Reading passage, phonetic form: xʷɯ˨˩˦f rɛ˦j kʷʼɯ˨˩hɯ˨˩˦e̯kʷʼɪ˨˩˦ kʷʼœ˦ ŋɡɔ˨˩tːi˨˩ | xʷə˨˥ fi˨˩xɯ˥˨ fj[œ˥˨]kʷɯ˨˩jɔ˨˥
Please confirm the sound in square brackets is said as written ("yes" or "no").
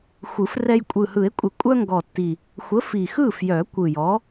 no